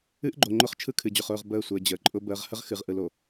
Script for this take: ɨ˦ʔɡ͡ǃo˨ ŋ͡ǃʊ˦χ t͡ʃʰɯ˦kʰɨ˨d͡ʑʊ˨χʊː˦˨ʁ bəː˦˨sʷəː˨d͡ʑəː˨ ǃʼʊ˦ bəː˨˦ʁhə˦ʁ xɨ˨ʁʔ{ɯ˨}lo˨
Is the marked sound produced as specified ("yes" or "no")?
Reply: yes